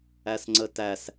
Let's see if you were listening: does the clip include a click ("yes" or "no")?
yes